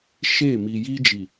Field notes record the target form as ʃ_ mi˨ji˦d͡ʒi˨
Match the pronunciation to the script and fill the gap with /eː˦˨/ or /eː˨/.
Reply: eː˦˨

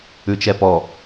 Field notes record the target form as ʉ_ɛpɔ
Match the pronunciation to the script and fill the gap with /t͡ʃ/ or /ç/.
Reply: t͡ʃ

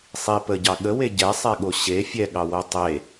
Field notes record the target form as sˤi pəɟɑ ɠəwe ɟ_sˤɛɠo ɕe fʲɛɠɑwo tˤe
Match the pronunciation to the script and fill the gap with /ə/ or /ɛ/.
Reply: ɛ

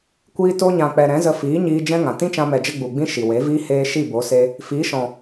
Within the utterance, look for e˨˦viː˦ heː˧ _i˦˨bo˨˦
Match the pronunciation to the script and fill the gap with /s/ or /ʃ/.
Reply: ʃ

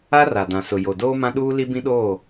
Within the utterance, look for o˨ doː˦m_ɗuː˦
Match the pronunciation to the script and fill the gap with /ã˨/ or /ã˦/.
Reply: ã˦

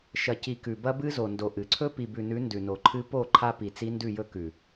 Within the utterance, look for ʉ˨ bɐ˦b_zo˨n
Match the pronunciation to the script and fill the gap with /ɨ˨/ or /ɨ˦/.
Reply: ɨ˦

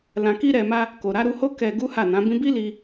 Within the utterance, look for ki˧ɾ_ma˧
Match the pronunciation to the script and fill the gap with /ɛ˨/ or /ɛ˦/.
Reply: ɛ˨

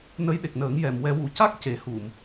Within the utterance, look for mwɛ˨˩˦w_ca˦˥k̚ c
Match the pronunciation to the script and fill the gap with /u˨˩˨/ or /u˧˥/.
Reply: u˨˩˨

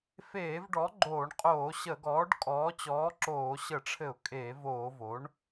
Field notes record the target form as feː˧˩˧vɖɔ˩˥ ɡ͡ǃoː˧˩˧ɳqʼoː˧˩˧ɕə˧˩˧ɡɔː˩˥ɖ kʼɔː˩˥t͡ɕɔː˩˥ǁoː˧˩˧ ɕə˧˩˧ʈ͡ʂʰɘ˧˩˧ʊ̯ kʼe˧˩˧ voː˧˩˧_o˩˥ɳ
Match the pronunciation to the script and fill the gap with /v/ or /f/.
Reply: v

